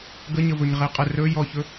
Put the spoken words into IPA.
ɡəɲə vɵɲʁeqʼə rɵ jɔçɵ

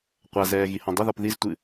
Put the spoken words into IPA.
qʷazɛː ɣihɔ̃dˤəðɔp ðiztʷɨ

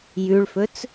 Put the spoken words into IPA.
jʉɭfɵt͡s

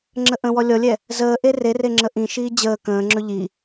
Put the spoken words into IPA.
ŋ͡ǁəʔə̃wɔ lʲɔlʲɛ | zəːʔe rere ŋ͡ǁəʔĩʃiː d͡ʑəː kə̃ːŋ͡ǁɵ ʎi

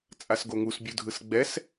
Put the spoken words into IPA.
t͡sʼasɡoŋus bʲudʱɯsɡ͡bɛs

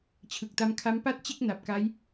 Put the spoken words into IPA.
t͡ɕʰɯ˨˩k̚ta˧mkʰa˦˥m pa˦˥t̚ t͡ɕe˥˩k̚na˨˩p̚ka˦˥j

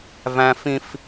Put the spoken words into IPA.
væ̃˦fĩ˦f

